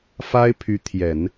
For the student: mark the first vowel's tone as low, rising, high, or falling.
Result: high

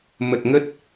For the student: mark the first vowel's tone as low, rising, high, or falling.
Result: low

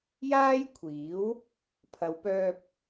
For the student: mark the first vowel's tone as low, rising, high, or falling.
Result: high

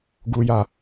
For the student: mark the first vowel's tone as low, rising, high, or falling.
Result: high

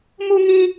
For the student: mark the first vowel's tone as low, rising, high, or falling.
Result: high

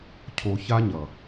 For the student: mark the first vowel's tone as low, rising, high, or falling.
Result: low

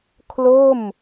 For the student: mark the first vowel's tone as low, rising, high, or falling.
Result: falling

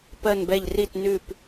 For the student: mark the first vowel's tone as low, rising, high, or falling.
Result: falling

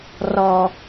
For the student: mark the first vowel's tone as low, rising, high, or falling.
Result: low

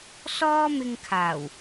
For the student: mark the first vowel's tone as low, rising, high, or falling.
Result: high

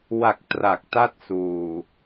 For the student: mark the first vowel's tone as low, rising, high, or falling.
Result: low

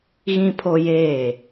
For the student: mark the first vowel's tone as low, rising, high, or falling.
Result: high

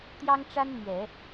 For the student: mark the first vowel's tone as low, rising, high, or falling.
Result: high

